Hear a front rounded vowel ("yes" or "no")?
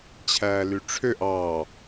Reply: yes